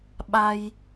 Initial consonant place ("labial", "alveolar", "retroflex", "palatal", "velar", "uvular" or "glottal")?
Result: labial